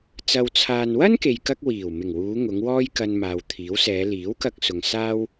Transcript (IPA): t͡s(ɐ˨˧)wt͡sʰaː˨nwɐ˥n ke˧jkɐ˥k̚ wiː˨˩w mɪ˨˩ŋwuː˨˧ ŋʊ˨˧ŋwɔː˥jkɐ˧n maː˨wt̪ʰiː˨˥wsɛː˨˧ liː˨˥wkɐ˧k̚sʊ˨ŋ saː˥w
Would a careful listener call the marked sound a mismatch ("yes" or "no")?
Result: yes